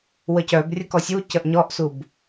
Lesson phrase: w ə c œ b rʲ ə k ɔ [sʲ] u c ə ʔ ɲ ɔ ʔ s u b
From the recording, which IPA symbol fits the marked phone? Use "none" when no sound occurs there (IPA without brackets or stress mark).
sʲ